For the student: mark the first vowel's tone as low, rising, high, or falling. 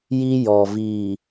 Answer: high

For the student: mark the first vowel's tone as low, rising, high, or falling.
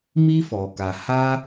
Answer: high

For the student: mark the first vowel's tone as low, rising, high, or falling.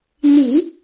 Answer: low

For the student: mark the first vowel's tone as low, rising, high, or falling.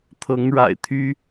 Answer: rising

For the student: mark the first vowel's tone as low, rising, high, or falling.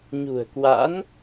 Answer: low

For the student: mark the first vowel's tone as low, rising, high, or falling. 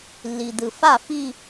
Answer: low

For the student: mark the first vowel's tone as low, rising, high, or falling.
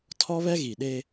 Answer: high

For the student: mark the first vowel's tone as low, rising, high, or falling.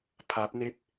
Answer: rising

